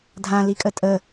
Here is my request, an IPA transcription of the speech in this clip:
dʱ ã l i kʼ ə tʼ ə

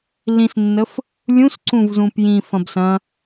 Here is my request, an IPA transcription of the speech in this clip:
l ĩ s nː ə f | lʲ ũ s ǀ ũ v z ũ p j ĩ f ɐ̃ b s ɐ̃

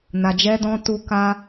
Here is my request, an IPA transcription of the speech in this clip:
n a˧ d͡ʒ ɛ˦ d ɔ̃˦ t u˧ k a˧

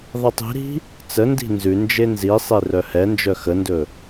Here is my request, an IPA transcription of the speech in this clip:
ðˤ i tˤ i̤ ɾ i̤ | t͡s ə n d i̤ n z ʉ n d͡ʒ e n z i sˤ e r œ h ɛ n d͡ʒ œ x ə n d ɵ

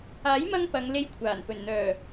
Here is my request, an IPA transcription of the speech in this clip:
aː˨˥ j m ɐ˧ ŋ p ɐ˨˧ ŋ l e˧ j kʷʰ aː˨˩ n p ɵ˨˩ n n̪ œː˨˩

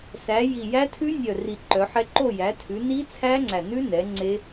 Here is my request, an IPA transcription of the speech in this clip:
s æ˩˧ j i˨˩ j æ˦˥ tʰ ʉ˦˥ nʲ œ˨˩ r i˨˩ ǃ œ˩˧ ħ ɛ˦˥ ǃ o˦˨ j æ˩˧ tʰ ʉ˩˧ n i˦˥ t͡sʰ æ˦˥ ŋ͡ǀ æ˨˩ n ʉ˦˥ n ɛ˩˧ ŋ͡ǀ e˦˥

